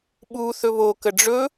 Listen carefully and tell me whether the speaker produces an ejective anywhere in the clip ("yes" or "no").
no